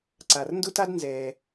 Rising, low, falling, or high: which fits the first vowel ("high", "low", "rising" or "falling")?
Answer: low